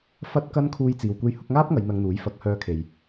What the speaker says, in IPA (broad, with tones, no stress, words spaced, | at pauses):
fɐ˥t̚kɐ˥n kʰuː˥jt͡siː˧w kʷe˧jhʊ˨˥k̚ŋaː˥p̚ŋɐ˨˧j n̪ɐ˧ŋn̪uː˨˥jfɐ˨˥k̚ hœː˧kʰe˨j